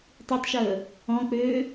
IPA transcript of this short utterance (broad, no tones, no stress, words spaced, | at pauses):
tˤitˤʃəː | ɔ̃k͡pøː